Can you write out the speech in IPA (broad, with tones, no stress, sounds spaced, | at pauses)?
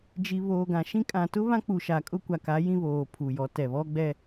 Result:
d͡ʒ i˨ β oː˨ ɡ ã˨ ʃ ĩ˦ kʼ ã˨ t ʊ˦ β ã˦ k͡p u˨ ʃ a˨ kʼ ʊ˦ kʷ a˨ k a˨˦ j ĩ˦ β oː˨ pʰ u˨ j ɔ˨˦ t ɛ˨ β ɔ˦ ɡ͡b ɛ˦